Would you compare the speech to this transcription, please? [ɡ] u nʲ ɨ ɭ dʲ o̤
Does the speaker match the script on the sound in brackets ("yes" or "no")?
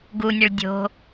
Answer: yes